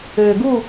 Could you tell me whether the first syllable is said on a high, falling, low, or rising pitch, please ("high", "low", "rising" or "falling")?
low